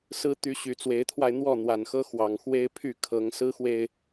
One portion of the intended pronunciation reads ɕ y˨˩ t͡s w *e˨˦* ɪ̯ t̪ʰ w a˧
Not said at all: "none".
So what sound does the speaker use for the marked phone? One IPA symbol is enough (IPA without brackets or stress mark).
e˨˦